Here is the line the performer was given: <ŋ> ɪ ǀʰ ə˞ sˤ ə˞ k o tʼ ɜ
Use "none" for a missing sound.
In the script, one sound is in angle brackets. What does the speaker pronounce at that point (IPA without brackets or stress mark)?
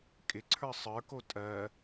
kʼ